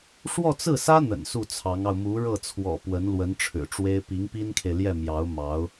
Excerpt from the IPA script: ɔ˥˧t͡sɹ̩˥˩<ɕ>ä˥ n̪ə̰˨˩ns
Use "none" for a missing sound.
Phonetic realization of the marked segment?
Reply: s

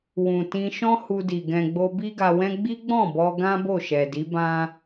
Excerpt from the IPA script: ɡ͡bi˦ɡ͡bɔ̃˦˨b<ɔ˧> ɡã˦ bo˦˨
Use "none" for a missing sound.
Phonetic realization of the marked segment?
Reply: ɔ˧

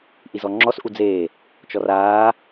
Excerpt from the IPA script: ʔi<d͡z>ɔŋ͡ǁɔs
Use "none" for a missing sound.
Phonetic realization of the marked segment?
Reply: z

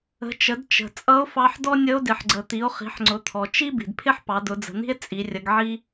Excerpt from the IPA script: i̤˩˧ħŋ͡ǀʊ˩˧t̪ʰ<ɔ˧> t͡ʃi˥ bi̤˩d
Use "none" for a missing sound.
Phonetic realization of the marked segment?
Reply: ɔ˩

